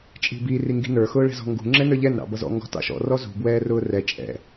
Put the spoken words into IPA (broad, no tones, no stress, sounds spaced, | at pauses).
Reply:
t͡ʃʼ i̤ b i r i ŋ ɡ i̤ n ə˞ x ʊː ɭ ɛ̤ z ɔ̤ ŋ ɡ ṳ ŋ͡ǁ ɛ n ə˞ ʎ ɛ n ɾ ɑ̰ b ʌ z ɔ̰ ŋ ɡ ɔ̤ t ɑ̰ ʃ ɔ̰ r ɔ z ṳ b w ɛː r ʊː r ɛ t͡ʃʼ ɛ̰